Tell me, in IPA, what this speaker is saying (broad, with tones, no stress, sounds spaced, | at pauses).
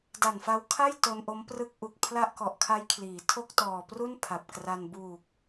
d a˨˩ n f a˧ w kʰ a˥˩ j t o˧ n ʔ o˦˥ m p r ɯ˦˥ k̚ ʔ u˨˩ k̚ pʰ l a˥˩ ʔ k ɔ˨˩ ʔ kʰ a˦˥ j kʰ l iː˩˦ tʰ o˥˩ k̚ t ɔː˨˩ p r u˥˩ n pʰ a˨˩ p̚ k r a˧ n b uː˨˩ k̚